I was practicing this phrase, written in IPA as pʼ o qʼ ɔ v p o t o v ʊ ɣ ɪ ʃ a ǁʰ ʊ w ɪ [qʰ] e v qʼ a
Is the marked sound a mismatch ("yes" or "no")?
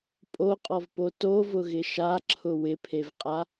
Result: yes